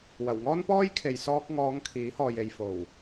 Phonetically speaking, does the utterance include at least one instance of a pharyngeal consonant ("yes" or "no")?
no